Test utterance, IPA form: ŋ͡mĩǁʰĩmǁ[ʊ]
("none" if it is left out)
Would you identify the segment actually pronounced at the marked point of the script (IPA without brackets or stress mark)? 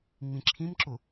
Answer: ʊ